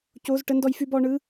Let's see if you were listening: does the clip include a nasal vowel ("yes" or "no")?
no